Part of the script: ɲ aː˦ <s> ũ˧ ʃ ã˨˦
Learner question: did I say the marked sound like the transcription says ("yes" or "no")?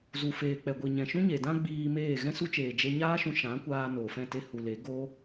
no